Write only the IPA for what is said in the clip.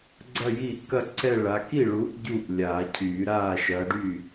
ɡ͡ǀ ɐ˥˧ j i˥˩ ʔ k ɐ˥˧ ǀ ɛ˥˧ ɭ a˨˦ k i˥˩ ɭ uː˨˦ ʔ ɟ u˥˩ ʔ lʲ aː˨˩˦ cʰ yː˨˩˦ ɾ aː˥˩ ʃ ɐ˨˦ ɖ y˥˩

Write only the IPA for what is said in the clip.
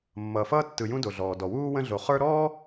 mː ʌː˨ f ʌː˥ tː ɯ˨ j ũ˦ d o˩ ɮ ɔː˩ d ɔ˩ w uː˥ w ə̃˦ ɮ o˨ χ ə˞˦ ɾ ɔː˥

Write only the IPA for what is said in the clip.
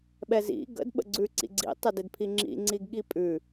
ɓ ɛ z ḭ ɡ ə̰ d ɓ ə̰ ɡ͡ǀ ʉ ǀ ḭ ɡ͡ǀ ḭ tˤ ə d ɪ d pʰ i ŋ͡ǁ ḭ ŋ͡ǀ i ɡ ɠ i pʼ ʉ

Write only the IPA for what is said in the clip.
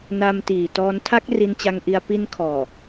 n a˧ m t iː˨˩ t ɔː˧ n tʰ a˦˥ k̚ r i˧ n t͡ɕ a˧ ŋ ʔ i˧ a̯ p i˧ n kʰ ɔː˨˩

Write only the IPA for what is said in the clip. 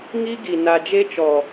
ŋ i˦ ɡ i˨ n a˨ d͡ʒ e˦ t͡ʃ ɔ˨

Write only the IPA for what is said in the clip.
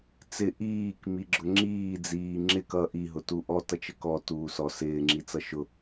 t͡s ɪ ʔ iː k m i ɡ͡ǁ ʊ ŋ͡ǁ iː d͡z iː ŋ͡ǁ ɪ k ʌ ʔ i ɦ ʊ t u ʔ ɔ t ʌ t͡ʃ ə k ɔ t uː s ɔ s ɪː ŋ͡ǁ i t͡s ʌ ʃ ʊ

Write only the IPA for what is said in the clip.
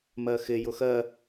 m ɜ x ɪ j ʊ x ɜ

